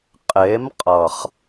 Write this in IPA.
qʼe˨˦mqʼʌ˨χ

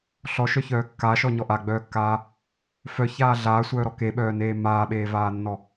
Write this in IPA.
ɬɔʃœçœː kːaʃɔɲɔ ʔaɡ͡bœːkːaː | fœçaː ɮaːsʷœːɾɔ keɓœːneː maːɓeːvaːnːɔ

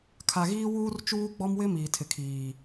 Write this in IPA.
kʰa˨ɣiː˦ wuː˦rt͡ʃuː˦ɡ͡bɔ˦mwɪ˦ miː˨tʰɪ˨kʰiː˨

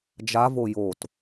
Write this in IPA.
d͡ʒavo jot

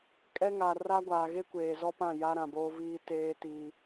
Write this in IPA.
kʼɛ˦ŋa˨ ra˦ɡʷaː˨ ɣe˦kʷeː˨zɔ˦pã˦˨ ja˦ɾã˨boː˦viː˦ teː˦ tiː˦

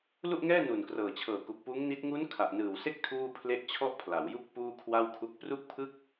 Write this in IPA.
lu˥˩ʔŋɛː˥˩ nu˨˩nkrɤː˨˩t͡ɕʰɤː˨˩ ku˨˩k̚puː˦˥ŋni˦˥t̚ ŋu˦˥n kʰa˨˩ʔnɯː˨˩wse˥˩k̚ tʰuː˥˩pʰle˥˩ʔ t͡ɕʰɔ˥˩ʔpʰla˩˦wju˥˩k̚ puː˥˩kʰwa˥˩wkʰu˦˥k̚ pru˥˩k̚pʰɯ˥˩k̚

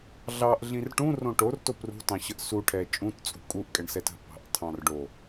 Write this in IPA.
ɮɑʔɮĩr ʈũrõ ʈorto prṳtɑ̃ɕəʔ suʈʰɛ t͡ʃʼũtt͡sʼṳ kʼuʔkʼɛɳsɛt ə̤pɑ̤ʔtʰɑ̃r ɖo

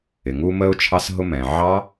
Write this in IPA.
ɪ˩ŋu˧ mə˧ʊ̯t͡ʃʰɑ˧s ɦʊ˧mɛ̃˩ ʕɑ˦˥

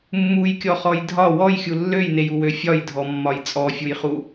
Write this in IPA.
mːujkʲɔχɔj dʱɒ wɔjxʲu lːøjnejuwø fʲɒjdʱɔmːɒj t͡sʼɔfʲujχu

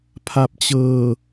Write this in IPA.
pʰa˨˩p̚t͡ɕɤː˨˩

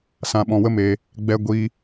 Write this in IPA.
sã˧ɓɔ̃˧wə˦meː˧ | ɡ͡bɛ˧ɡʷiː˧

